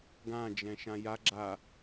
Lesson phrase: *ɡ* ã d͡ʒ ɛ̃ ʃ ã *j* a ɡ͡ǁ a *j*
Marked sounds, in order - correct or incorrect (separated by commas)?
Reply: correct, correct, incorrect